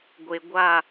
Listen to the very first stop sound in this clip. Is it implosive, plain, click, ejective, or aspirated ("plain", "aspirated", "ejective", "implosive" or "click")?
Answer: plain